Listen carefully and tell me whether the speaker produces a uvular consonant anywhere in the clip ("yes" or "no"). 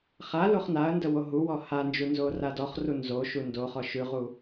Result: yes